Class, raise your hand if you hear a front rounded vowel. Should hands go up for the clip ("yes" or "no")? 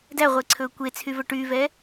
yes